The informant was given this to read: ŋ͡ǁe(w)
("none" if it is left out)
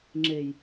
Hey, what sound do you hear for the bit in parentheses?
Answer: j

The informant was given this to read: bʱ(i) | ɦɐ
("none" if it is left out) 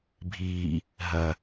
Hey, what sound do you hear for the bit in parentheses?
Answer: iː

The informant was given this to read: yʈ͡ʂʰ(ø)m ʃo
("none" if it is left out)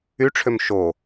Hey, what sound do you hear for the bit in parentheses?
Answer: ø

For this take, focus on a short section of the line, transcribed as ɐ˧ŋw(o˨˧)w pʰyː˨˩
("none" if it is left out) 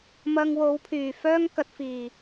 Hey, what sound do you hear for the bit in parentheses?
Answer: o˨˧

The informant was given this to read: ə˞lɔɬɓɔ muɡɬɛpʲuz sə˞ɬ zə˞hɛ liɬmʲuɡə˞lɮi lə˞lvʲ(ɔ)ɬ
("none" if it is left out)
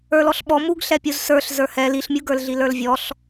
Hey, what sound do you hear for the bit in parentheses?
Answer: ɔ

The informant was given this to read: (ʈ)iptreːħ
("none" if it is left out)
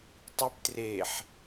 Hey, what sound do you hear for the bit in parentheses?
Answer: tˤ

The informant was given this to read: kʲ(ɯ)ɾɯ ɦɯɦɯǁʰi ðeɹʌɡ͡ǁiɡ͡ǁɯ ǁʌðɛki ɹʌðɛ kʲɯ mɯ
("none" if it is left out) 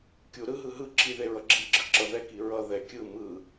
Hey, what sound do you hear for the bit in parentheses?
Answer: u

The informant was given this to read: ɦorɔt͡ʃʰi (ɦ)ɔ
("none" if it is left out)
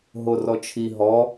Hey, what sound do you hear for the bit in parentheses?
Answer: ɦ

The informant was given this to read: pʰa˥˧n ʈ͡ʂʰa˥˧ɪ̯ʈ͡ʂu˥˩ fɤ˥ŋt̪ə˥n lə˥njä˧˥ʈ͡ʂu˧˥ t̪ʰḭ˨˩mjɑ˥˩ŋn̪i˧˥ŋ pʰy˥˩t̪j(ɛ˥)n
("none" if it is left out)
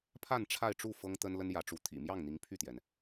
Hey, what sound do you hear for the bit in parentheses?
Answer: ɛ˩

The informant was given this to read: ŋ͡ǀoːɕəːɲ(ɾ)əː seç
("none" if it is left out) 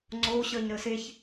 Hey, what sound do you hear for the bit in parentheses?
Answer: ɾ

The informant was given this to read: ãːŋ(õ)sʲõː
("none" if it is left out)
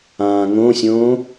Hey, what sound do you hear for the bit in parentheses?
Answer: õ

